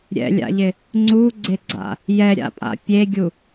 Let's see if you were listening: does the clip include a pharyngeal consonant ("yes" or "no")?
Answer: no